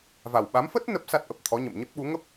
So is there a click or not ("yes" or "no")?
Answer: no